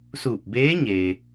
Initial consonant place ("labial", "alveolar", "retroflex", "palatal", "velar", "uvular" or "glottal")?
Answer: alveolar